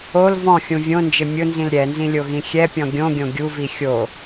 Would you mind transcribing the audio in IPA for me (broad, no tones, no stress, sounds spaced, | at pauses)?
o l v ɔ̃ xʲ ũ vʲ õ n d͡ʒ ɪ mʲ ʊ n z ĩ l ɾʲ ɛ n z ĩ lʲ o ɣ ĩ xʲ ɛ pʲ ɔ̃ ɡʲ õ ɡʲ õ ɡʲ u v i xʲ o